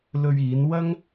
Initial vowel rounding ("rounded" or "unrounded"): rounded